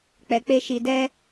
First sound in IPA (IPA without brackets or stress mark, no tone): k͡p